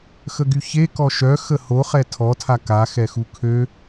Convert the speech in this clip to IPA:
xəɡyçe kɔʃœ xəhoχɛ tʰɔtʰa ka xɛxukʰø

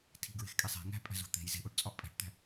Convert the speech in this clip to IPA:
tʰi̤ɡɹe̤xkʼe sˤe̤ ŋæ̤pʼæ̤zo̤ t̪e̤j ze̤ʔoʈt͡sʼɒʔ pʼæ̤ʈt̪æ̤

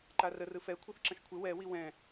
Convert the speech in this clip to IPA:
ǃarə rɯfɛ kʷʰɯθǁə̃ʃkʷʰɪ wɛ wiwɛ̃

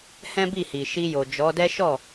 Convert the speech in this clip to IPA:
hɛ̃˦bi˦˨hi˨ ʃi˧jo˨d͡ʒɔ˨˦dɛ˦ ʃɔ˦˨

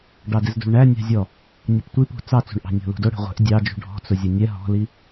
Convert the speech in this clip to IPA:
ɖɑdɪzdṳɭɳæ nʲɑ̤zʲɔ | nʲʌptʷipṳ t͡sɑt͡sṳɳʔɑ̤ nʲɔ̤lṳdʊ ɽɛ̤ʁʷɛ̤ʔ dʲɑd͡ʒṳ ɖʱɔ̤t͡sʊzʲʊ nʲɛ ɦɔ̤li

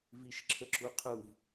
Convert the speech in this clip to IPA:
viʃǁʰəǁuqʰuv

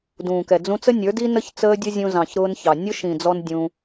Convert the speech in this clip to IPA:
dũː˨kɛ˨d͡zũ˦ t͡sə˦nʲə˞˨˦di˦ nə˦ç t͡səː˦dʲʊ˦zʲũ˧ zɑ̃˨çɾʊː˧n çɑ˨ nʲʊ˦ʃĩ˨d͡zɔ˧n dʲũ˧

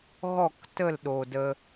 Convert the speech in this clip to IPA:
ɣɔ˦˨ktə˦˨l ɗoː˨də˧

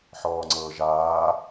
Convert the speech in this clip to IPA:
ħɔːŋ͡ǀɤːʒaː

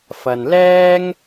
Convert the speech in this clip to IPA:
fɐ˨nlɛː˥ŋ

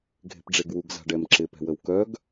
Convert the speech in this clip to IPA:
ɡʱe̤pɖ͡ʐeɡwuɡ za̤ɖɛmǁɪ pɛ̤wəwkœɡ

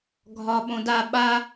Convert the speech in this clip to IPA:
ɡʱɒ ɓõda ɓa

